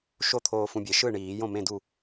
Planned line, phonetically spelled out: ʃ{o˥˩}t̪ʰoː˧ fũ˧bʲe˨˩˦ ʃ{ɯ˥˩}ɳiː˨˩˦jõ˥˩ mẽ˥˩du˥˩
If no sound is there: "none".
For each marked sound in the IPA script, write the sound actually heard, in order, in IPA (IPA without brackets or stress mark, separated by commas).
o˥˩, ɯ˥˩